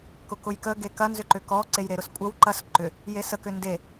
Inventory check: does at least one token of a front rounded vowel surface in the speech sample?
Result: yes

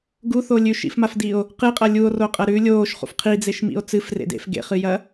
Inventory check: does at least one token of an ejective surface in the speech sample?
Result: yes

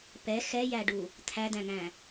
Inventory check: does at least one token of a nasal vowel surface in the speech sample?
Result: yes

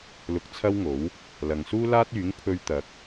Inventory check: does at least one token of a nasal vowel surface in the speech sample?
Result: no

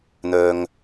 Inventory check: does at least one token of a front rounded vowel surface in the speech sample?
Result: yes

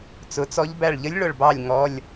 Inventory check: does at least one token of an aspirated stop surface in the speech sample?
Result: no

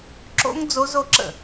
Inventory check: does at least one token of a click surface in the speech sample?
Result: yes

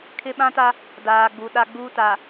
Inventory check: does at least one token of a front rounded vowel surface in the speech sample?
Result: no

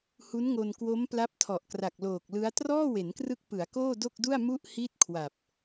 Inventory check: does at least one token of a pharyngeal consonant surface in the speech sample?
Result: no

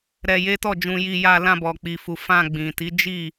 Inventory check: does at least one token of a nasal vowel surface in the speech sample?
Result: yes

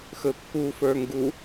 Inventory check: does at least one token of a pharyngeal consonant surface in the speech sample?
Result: no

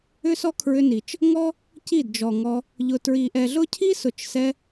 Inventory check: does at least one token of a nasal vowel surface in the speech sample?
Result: no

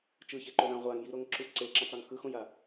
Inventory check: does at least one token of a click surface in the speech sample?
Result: yes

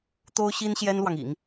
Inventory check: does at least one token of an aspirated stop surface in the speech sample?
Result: no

